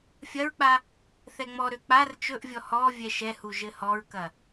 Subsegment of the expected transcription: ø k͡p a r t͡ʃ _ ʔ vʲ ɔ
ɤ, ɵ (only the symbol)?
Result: ɵ